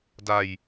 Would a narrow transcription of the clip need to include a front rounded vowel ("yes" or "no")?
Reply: no